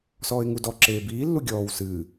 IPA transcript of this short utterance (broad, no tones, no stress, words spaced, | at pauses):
sɔːɪ̯ŋudɔ ǁeːbiː lːuɡʲɔːw sɨː